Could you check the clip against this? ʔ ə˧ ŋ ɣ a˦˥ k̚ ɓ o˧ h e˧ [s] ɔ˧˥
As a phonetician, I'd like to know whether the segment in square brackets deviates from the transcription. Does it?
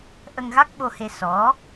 no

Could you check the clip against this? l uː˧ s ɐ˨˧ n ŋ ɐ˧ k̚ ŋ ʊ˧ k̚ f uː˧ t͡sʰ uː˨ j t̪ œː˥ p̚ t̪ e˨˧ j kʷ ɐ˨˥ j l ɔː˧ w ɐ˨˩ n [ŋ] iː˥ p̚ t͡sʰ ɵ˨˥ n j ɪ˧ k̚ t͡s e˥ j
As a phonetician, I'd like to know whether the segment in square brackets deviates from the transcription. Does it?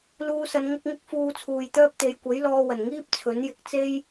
no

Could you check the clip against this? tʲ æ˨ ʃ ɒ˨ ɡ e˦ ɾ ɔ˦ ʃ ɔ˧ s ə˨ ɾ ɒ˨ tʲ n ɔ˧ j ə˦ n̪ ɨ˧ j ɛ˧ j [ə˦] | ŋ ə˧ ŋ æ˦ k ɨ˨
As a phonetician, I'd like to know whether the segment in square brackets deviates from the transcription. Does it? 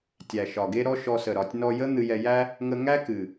yes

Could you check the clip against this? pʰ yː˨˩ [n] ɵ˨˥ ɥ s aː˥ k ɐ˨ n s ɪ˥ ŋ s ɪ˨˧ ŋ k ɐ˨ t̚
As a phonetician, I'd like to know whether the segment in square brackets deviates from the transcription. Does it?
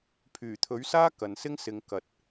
yes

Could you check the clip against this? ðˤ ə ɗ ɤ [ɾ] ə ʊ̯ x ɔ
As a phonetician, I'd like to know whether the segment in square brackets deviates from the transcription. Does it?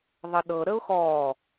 no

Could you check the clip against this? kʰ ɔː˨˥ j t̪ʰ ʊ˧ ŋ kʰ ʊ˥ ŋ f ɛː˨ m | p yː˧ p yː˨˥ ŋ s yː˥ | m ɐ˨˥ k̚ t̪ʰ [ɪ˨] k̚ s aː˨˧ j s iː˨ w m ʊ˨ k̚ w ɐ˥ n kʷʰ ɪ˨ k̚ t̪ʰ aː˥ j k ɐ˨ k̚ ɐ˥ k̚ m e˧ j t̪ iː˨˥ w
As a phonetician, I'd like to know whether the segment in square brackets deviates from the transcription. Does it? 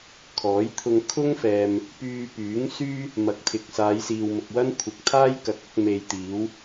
no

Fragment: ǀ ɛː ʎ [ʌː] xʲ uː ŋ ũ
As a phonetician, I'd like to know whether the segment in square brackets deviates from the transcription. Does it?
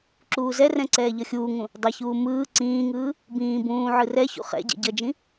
yes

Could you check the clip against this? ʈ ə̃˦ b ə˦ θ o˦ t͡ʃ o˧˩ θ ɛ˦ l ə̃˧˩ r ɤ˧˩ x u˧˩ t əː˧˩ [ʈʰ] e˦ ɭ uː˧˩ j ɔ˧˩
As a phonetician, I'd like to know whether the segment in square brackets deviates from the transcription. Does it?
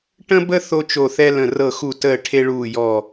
no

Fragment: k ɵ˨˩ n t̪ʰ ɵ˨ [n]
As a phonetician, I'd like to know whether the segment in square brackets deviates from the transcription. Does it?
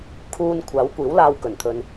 no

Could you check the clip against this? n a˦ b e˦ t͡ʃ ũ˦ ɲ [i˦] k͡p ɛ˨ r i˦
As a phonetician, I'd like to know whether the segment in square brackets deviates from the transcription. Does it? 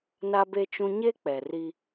yes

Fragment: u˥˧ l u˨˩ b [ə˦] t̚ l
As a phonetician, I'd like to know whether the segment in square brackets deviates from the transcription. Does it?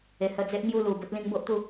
no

